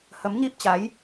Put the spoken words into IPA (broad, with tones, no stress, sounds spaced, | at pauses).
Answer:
h ə˨˦ m ɲ i˦˥ p̚ t͡ɕ a˨˦ j